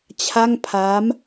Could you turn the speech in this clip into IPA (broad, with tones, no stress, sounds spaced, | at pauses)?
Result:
t͡ɕʰ a˥˩ ŋ pʰ aː˦˥ m